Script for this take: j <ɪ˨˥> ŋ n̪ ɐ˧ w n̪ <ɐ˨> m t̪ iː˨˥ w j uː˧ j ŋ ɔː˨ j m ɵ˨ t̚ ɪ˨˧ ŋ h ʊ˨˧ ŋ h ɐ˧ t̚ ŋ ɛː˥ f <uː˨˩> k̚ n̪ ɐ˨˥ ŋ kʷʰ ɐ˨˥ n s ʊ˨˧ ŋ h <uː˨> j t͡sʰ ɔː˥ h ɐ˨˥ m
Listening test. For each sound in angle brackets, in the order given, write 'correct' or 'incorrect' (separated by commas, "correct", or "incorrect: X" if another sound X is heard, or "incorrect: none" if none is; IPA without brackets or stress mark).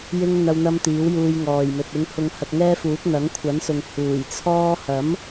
incorrect: ɪ˥, incorrect: ɐ˧, incorrect: uː˨˥, incorrect: uː˨˩